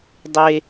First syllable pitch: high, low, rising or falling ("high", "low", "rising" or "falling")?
high